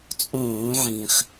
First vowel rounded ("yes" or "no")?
yes